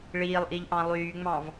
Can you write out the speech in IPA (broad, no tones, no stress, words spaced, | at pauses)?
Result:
ɭiːlˠʔiʎ ʔɑ̃lˠyːŋ͡mɑ̃v